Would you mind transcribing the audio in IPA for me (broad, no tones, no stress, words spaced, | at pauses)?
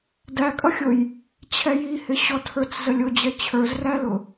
dækʼʌxʲʊj | t͡ɕʰɛjihɪ ɕɔtʰə˞t͡szəlʲʊ d͡ʑɛt͡ɕʰə˞zrælʊ